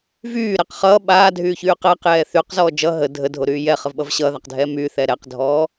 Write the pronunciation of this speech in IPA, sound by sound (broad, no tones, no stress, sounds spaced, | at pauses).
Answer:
v yː ɾ ɛ q χ ʌː ɓ aː dʱ yː ç yː q ɛ q j ɛː θ y q z ɔː d͡ʒ ʌ ɦ ə dʱ ə dʱ o ɾ yː j ɛ χ ə v ɓ ʌ v ɕ ʌː ð a q dʱ ɛː m y θ ɛ ɾ ɛ q dʱ ɔː